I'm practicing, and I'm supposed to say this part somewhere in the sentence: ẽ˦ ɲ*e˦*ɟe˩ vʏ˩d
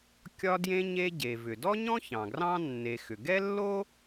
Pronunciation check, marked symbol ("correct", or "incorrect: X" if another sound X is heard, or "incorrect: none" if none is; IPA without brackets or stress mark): correct